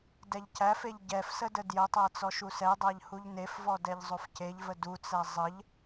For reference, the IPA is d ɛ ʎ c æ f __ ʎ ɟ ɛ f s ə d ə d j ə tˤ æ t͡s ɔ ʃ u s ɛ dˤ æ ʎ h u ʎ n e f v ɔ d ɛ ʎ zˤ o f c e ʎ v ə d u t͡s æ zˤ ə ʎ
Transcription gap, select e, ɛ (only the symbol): e